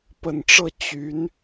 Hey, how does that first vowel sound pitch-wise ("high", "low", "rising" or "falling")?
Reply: low